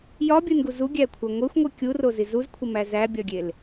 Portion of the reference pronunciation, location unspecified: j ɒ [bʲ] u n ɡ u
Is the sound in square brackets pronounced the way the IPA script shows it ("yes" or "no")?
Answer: yes